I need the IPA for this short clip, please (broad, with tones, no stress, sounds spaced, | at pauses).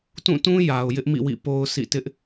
t ũ˦˨ t ũ˦ j a˨ ʊ̯ j ɪ˦ ʔ m ḭ˦˨ w ḭ˦˨ p o˦ ʊ̯ sʰ ḭ˦˨ t ɪ˦ ʔ